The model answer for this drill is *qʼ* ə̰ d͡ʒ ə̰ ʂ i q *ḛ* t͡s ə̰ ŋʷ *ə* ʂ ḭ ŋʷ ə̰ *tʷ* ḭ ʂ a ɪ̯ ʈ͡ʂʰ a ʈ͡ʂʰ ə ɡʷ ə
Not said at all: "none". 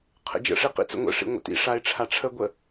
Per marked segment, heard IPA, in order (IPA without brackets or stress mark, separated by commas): qʰ, ḭ, ə̰, t